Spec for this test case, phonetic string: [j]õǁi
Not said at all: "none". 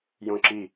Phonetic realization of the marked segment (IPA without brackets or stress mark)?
j